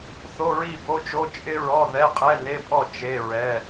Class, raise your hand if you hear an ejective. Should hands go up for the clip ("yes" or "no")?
yes